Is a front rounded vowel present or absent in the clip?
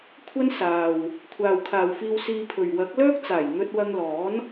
present